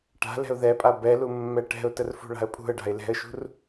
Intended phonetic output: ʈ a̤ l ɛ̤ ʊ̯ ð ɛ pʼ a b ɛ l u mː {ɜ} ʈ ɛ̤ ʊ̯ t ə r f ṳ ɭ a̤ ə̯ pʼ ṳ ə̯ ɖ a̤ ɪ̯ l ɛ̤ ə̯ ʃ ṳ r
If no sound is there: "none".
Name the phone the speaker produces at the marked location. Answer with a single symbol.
ɛ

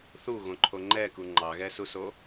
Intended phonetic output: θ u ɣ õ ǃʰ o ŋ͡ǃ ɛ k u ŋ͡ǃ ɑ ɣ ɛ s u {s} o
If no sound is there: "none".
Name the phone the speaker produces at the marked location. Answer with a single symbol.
s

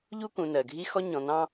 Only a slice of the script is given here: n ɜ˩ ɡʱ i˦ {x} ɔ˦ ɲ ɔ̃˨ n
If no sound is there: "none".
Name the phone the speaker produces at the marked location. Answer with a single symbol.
x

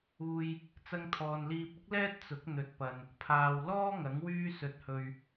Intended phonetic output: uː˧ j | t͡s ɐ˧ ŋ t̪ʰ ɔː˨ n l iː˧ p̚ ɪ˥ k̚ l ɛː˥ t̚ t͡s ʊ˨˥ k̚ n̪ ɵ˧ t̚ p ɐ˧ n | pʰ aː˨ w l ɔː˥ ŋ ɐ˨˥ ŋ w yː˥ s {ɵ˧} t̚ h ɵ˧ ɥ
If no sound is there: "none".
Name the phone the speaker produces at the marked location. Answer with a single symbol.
ɵ˧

